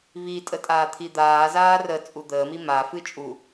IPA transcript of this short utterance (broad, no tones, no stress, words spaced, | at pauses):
βitʼə tʼaːt̪ʰid̪aːzaː rə t͡sʼud̪əːmi mafɨ t͡ʃʼu